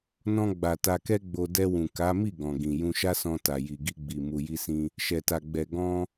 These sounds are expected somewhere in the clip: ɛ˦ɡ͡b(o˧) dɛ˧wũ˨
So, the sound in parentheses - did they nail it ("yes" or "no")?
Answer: yes